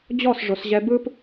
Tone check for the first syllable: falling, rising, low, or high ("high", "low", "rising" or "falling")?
falling